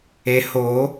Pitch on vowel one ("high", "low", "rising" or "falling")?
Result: low